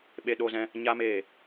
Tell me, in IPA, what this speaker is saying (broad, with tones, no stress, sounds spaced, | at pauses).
ɓ e˦ ɗ o˦ z ɛ̃˦ | ɲ a˦ m eː˦˨